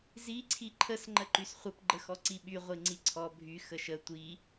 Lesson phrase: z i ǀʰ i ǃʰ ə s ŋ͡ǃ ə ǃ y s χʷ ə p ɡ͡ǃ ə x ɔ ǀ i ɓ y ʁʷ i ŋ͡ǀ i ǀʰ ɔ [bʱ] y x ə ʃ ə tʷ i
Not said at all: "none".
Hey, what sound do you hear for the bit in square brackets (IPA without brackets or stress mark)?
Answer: bʱ